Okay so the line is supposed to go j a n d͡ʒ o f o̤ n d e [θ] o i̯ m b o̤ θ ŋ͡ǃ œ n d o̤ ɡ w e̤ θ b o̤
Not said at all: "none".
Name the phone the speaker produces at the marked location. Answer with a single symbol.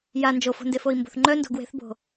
f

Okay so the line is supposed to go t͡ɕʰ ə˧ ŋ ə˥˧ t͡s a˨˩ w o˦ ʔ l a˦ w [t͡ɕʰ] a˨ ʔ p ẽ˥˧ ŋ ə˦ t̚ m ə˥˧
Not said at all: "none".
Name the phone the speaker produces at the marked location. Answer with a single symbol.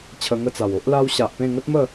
ɕ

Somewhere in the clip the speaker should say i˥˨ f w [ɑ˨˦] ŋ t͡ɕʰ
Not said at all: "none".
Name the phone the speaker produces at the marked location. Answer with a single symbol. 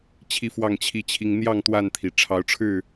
ɑ˥˨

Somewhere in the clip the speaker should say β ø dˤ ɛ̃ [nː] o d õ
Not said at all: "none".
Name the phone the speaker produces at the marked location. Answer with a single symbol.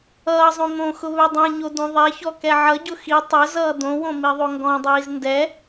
ɲ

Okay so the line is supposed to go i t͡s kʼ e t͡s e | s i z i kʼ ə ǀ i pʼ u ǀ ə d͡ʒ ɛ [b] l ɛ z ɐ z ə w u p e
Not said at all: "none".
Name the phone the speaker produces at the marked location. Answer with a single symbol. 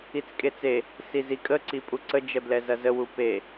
b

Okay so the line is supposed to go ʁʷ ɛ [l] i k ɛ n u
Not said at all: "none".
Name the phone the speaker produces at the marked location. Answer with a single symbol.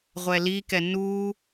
l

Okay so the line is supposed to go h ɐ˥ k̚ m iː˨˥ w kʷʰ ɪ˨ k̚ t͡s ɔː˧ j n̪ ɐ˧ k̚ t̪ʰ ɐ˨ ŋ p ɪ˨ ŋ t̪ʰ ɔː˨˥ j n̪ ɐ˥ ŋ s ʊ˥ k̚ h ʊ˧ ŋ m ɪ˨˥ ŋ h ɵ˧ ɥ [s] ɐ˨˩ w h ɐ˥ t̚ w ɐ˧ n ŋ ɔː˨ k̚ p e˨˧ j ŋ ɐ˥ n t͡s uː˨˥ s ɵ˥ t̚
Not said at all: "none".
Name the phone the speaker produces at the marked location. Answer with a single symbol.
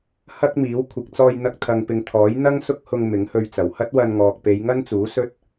t͡s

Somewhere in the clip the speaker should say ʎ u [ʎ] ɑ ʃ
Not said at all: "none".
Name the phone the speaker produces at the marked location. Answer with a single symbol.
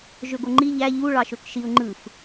ɭ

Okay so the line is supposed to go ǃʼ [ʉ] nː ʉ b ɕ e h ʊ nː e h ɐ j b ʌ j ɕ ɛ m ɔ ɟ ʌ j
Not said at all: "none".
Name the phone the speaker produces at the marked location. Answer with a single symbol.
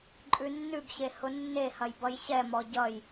ʉ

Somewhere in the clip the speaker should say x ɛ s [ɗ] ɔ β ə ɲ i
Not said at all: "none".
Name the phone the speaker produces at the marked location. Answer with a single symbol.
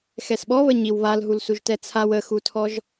ɓ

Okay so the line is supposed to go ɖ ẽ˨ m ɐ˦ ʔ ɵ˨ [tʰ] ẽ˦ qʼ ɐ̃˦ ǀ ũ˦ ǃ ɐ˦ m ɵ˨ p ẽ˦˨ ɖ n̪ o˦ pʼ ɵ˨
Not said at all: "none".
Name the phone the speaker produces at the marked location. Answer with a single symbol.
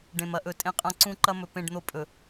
tʼ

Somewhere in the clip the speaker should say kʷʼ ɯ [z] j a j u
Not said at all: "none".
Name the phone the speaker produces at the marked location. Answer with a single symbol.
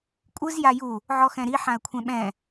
z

